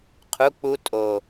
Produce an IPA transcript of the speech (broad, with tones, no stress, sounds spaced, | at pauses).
qʰ u˧˥˧ k͡p u˦˥ tʼ o˨˩